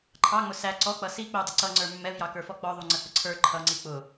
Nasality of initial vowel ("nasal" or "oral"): oral